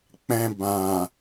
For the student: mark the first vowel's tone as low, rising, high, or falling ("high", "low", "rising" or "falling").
low